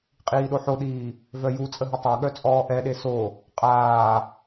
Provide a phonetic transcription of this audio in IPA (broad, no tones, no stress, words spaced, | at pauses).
qʼiːɗoħoɗiː | vœjut͡sʼə ɦətˤaɠœ t͡sʼɔːʔɛɗe so | qʼaː